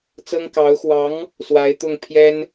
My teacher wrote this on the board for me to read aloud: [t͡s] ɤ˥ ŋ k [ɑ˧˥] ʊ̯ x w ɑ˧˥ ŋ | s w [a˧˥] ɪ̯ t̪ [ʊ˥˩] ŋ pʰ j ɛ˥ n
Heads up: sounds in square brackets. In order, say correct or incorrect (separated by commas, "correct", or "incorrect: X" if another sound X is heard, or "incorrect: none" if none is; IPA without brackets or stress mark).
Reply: correct, correct, correct, correct